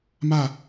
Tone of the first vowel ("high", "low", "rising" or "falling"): falling